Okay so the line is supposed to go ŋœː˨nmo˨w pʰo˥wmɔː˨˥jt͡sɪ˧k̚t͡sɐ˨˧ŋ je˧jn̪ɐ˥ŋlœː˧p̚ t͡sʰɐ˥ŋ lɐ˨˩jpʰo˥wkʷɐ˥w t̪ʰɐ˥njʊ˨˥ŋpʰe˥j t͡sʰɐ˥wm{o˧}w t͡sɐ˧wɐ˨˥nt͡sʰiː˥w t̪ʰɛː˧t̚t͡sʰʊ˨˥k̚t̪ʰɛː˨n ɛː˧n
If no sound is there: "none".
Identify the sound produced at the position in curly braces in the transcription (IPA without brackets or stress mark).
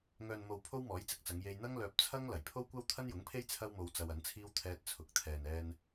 o˧